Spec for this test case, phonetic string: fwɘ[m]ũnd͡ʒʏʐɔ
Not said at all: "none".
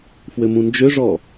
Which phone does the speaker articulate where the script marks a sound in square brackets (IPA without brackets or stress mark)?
m